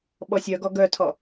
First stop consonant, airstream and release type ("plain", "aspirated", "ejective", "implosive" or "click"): implosive